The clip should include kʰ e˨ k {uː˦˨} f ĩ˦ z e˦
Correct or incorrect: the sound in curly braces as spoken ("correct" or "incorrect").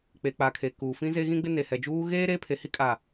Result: incorrect